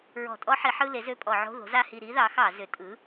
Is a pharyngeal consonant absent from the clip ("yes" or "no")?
no